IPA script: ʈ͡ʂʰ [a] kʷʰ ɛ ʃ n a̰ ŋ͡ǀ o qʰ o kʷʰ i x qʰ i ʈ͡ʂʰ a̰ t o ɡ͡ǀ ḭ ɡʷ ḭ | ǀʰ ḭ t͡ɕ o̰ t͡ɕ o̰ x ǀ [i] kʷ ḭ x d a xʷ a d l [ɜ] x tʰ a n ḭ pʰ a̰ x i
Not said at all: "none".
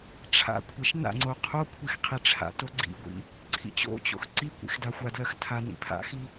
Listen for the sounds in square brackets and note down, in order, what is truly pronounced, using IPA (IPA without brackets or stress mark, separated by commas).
a̰, i, ɜ